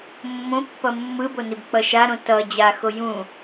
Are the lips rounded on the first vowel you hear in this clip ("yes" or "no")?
yes